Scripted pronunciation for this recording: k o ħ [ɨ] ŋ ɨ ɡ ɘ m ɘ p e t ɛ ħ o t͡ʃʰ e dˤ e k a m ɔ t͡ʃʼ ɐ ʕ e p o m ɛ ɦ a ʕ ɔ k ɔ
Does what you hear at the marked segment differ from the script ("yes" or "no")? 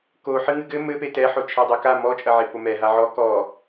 no